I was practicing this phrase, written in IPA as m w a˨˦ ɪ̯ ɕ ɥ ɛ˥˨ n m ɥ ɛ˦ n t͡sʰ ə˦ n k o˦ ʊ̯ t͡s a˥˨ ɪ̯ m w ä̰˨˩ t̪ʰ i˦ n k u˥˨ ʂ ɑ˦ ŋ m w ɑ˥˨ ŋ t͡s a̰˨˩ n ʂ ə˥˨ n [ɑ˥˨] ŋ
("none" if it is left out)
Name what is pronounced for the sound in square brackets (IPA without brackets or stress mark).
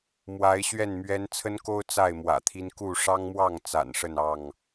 ɑ˥˨